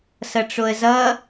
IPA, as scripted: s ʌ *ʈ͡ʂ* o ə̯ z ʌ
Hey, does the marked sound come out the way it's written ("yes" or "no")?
yes